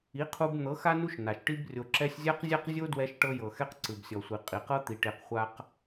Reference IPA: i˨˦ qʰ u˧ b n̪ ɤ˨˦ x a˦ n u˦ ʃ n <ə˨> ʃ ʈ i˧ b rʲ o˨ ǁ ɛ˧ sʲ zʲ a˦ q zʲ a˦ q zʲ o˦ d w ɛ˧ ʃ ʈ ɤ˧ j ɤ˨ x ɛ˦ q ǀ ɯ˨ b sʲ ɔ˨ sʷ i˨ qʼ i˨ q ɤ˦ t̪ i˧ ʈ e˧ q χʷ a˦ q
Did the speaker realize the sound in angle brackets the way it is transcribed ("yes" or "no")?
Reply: no